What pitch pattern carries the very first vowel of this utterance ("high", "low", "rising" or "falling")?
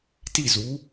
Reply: falling